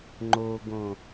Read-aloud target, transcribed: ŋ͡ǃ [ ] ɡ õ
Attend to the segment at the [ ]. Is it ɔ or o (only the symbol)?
o